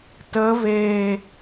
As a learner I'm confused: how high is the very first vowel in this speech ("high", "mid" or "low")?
mid